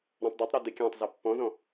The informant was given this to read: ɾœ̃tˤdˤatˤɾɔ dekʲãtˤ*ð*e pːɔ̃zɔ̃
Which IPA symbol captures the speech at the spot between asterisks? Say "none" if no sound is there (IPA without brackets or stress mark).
z